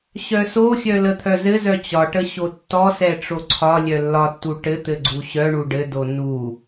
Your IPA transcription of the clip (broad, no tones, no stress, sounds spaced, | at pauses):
ɕ œ s o xʲ œ l ə t̪ʰ œ z ɘ z œ t͡ɕ ɒ ʈ ə ɕ o tː ɔ s ɛ ʈ͡ʂ o ǀʰ ɒ lʲ œ lː ɒ tː u ʈ ɘ t̪ ɘ ɡ͡ǀ u ɕ œ ɳ u ɖ ɘ d o n u